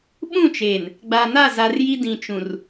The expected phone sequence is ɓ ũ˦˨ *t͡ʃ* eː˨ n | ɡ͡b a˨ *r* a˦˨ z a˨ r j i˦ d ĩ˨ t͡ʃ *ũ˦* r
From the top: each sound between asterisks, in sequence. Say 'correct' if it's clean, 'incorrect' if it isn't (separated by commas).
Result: correct, incorrect, incorrect